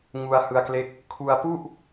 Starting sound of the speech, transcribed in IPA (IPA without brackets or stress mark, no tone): ŋ